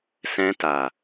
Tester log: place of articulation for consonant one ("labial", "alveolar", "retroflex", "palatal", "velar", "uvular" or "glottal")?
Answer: alveolar